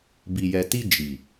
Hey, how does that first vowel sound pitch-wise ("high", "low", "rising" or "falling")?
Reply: low